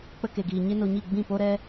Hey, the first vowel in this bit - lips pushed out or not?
no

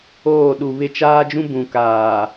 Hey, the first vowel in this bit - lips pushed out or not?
yes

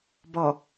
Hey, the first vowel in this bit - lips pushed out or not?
yes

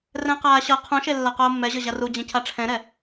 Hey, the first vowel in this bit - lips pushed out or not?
no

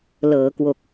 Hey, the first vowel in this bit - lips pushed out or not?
no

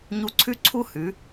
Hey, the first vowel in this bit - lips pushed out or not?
yes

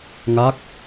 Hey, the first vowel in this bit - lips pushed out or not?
no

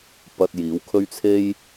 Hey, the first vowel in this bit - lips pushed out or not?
no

